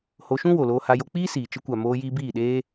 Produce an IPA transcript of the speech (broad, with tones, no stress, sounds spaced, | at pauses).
h o˧ ʃ ũ˦ w o˨ l oː˧ h a˧ j o˧ k͡p iː˦ s iː˨ t͡ʃ ə˧ kʷ a˨ m oː˧ j iː˧ b iː˦˨ ɗ eː˦